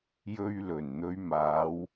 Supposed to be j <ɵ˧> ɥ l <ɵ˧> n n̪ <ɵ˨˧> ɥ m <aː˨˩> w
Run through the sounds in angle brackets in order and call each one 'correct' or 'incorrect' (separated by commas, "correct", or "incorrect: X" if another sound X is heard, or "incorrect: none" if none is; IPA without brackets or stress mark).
correct, incorrect: ɵ˨˩, correct, incorrect: aː˨˧